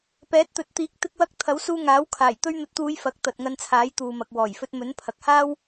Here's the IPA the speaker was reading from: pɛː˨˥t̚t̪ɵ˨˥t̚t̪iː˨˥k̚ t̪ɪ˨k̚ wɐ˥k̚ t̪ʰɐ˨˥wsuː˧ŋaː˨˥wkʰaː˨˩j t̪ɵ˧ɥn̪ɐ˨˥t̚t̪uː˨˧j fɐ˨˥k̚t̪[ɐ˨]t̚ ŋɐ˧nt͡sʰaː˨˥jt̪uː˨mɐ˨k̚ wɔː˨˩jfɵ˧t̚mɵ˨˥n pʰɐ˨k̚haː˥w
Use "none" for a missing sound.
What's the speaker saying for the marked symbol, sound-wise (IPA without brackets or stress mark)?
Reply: ɐ˨